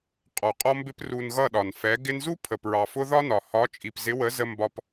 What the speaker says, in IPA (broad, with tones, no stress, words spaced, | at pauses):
qʼɔ˨ qʼɔ˧mbɪ˧p ru˨n ɣʌ˦˨ɗɒ˨n fɛ˨˦ ɡɪ˧nzu˦ pʰə˨pɹɑ˨fʊ˧ ðɒ˦nɒ˨ hɒ˨˦t͡ʃʼi˨pzɪ˨˦wə˨˦ zə˧mbɒ˧p